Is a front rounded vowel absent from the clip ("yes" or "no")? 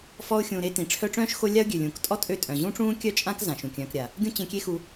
no